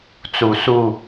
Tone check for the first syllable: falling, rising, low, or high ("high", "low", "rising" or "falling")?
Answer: low